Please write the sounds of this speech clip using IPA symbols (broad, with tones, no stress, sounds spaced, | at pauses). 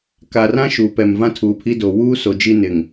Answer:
k a˨ r ã˦ ʃ uː˨ p ɛ˨ m v ã˦ tʰ uː˨ pʰ i˦ d o˨ w uː˦ s o˨ d͡ʒ i˦ n ɪ˨ ŋ